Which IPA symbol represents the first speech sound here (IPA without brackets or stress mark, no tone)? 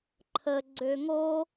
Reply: ǃʰ